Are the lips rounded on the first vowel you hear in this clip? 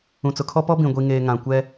yes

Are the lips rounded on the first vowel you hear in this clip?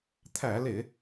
no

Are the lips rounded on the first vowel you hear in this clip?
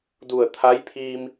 yes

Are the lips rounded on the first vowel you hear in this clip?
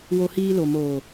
yes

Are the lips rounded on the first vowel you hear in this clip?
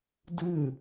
no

